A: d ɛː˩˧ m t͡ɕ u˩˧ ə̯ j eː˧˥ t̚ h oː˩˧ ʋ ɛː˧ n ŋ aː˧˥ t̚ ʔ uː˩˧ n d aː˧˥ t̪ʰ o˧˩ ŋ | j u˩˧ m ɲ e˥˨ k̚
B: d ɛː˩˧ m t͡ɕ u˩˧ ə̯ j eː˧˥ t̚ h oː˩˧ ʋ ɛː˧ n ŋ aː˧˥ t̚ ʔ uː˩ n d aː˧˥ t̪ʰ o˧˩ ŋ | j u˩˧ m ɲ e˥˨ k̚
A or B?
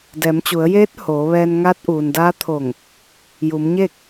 B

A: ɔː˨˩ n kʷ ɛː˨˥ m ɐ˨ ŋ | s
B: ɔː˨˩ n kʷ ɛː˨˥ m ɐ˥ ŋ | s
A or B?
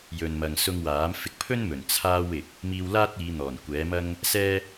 B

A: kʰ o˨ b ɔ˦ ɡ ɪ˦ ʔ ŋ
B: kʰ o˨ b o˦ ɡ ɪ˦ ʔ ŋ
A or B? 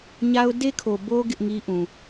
B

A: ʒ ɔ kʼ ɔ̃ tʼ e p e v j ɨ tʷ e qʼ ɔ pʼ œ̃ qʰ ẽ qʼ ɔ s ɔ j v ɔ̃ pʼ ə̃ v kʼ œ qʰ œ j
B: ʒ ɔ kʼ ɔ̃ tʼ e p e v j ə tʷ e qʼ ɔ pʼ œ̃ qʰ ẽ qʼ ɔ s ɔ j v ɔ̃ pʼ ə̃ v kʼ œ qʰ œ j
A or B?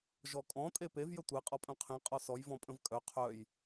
B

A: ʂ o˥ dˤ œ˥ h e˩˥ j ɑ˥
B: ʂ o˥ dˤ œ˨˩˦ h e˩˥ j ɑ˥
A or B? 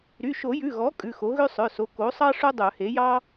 B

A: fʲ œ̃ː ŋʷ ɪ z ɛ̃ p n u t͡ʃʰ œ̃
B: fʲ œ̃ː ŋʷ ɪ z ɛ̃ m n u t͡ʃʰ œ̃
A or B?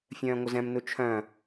B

